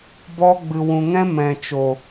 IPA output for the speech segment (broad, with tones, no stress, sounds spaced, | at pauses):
b ɔ˧ ɡ͡b ɨ˨ w ũ˨ ŋ ɛ̃˦ m ɛ̃˨ t͡ʃ o˨